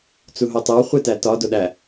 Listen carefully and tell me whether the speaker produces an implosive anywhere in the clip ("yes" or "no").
yes